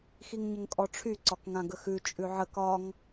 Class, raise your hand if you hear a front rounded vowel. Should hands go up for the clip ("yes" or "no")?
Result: yes